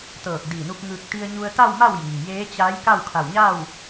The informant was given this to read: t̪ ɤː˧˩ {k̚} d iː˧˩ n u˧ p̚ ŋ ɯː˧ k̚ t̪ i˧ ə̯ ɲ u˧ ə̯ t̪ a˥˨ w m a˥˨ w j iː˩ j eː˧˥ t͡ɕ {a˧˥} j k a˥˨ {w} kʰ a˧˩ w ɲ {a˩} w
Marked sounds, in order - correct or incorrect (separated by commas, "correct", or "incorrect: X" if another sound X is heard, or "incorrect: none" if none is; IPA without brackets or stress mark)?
correct, correct, correct, incorrect: a˥˨